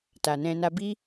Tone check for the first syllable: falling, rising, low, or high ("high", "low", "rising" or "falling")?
low